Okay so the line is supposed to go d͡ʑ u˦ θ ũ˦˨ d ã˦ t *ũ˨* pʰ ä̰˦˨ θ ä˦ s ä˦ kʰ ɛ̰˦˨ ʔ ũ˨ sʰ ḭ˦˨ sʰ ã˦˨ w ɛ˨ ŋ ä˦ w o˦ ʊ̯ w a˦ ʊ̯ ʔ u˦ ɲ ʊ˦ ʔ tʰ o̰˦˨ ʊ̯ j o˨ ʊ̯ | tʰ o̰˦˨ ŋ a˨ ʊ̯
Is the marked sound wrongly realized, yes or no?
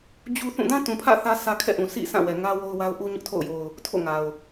no